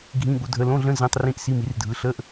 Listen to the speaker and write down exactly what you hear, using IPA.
ɡʱ ĩ˧˥˧ ɠ u˩˥ dʱ ə˧˥˧ l õ˧˥˧ ɮ ə̃˧˥˧ z ẽ˧˥˧ tˤ r ĩ˧˥˧ ʔ s i˧˥˧ m i˩˥ r dʱ ɯ˩˥ ɬ ə˧˥˧ ʔ

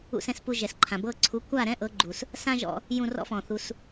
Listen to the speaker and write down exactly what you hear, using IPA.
ṵ˥˩ s ɛ̃˧ s p u˧ ʒ ɛ˩ s ǃʰ ã˩ b ɤ˥˩ ǀʰ u˩˥ kʷ a˥˩ ɾ ɛ̃˥ ʔ ɤ˩˥ ɡ͡ǃ u˩ s | s ã˥ ʒ ɔ̰˧ | j ũ˥˩ r ɔ̰˥ f ɔ̃˩ θ u˧ s

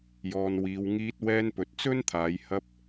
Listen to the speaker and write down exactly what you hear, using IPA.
j ɔː˨ n w iː˨ w ŋ iː˧ t̚ w ɛː˧ n p ɵ˨ t̚ t͡s ɵ˥ n t̪ʰ aː˨˧ j h ɐ˧ p̚

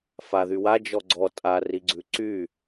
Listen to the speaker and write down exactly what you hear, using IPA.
f a ð y w a d͡ʒ ɔ ɡ͡ǀ ɔ tʼ a r i ɡ͡ǀ ʉ ǀ y

